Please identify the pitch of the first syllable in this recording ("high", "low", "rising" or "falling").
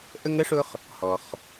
high